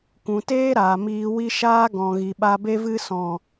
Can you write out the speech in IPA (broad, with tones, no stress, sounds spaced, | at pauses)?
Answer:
kʷ ũ˨ t eː˦ ɾ aː˨ m iː˧ w i˦ ʃ aː˦ ɡ ɔ̃˨ ɣ i˨ ɓ a˧ b e˧ v ɨ˧ s ɔ̃˨